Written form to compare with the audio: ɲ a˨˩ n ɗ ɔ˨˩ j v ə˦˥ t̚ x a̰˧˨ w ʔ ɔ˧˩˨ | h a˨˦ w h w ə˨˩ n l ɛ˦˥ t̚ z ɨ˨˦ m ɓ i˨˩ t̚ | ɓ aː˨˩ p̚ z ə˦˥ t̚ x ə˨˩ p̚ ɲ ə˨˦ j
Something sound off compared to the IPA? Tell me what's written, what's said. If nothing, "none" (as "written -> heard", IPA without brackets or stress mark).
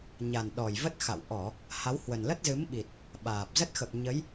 ɛ˦˥ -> ə˦˥